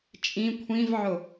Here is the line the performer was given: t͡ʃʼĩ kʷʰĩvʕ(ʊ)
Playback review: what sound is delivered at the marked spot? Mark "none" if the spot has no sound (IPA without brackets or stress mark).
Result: ʊ